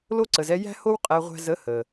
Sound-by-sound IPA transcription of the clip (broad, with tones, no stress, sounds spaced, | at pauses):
l o˦ ǀ ə˨ z ɛ˦ j æ̤˦ h o˦ w qʼ æ˦ ʁʷ æ̤˦ z ə˨˦ h ə˨